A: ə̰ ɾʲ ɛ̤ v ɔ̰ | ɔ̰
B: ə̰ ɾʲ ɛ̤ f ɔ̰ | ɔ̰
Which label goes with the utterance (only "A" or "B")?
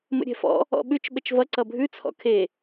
B